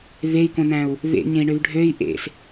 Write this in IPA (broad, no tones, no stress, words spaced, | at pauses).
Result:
vei̯kõnæ̃u̯ | vḛɲẽi̯ɳøv ɖʱøi̯ ʔḛs